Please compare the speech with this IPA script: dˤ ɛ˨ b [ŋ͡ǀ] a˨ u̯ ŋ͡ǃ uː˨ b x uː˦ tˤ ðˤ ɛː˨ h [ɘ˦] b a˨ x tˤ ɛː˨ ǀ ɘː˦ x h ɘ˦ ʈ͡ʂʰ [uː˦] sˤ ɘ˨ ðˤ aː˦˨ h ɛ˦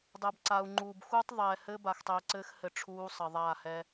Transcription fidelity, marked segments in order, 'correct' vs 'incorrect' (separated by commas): incorrect, correct, correct